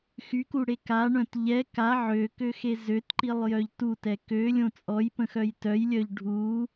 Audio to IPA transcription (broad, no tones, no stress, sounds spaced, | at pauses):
x y k u ɽ e k a ɳ œ̃ t ʎ ɛ k a ʕ ø k ø x e z ø t ǃ i lˠ j œ ʎ t u t ɛ k ø lʲ õ t͡sʼ ɔ j p ə̃ x œ j t œ j lʲ œ ʎ ɖʱ u